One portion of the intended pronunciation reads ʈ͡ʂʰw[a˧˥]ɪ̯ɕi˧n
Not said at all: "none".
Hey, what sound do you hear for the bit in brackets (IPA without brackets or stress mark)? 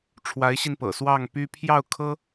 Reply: a˧˥